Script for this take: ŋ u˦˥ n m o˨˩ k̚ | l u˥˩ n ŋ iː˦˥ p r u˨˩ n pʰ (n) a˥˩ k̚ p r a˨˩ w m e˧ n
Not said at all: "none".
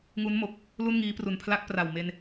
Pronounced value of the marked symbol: l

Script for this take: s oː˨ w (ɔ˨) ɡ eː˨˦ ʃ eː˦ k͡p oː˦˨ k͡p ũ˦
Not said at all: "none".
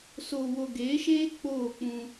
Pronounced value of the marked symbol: o˨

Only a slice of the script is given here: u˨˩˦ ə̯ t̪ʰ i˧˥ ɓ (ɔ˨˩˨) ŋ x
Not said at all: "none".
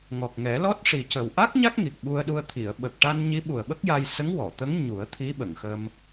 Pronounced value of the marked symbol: ə˨˩˨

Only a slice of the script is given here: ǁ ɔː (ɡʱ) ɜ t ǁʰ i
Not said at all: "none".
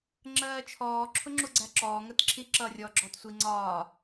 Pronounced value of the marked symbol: ŋ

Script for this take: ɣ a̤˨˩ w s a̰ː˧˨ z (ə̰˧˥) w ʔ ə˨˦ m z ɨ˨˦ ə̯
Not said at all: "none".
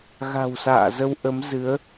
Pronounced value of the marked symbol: ə˧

